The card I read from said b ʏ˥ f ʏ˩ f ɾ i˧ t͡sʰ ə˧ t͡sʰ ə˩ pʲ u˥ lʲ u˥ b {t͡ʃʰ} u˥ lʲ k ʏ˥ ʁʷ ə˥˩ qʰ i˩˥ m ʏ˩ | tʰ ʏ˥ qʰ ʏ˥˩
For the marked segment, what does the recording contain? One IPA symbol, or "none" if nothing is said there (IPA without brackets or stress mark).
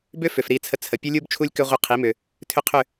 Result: t͡ʃʰ